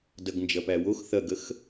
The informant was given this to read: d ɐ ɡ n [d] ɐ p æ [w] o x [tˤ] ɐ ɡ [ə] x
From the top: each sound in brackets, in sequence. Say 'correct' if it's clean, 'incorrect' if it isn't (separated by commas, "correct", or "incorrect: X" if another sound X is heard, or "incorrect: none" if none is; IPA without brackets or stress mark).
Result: incorrect: d͡ʒ, correct, incorrect: θ, correct